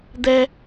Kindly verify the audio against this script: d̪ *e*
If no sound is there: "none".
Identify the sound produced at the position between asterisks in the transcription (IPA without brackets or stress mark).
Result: ɛ